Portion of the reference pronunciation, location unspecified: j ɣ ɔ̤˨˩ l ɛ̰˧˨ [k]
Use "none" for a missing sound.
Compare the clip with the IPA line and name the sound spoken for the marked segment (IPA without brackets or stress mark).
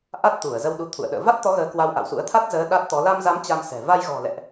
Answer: ʔ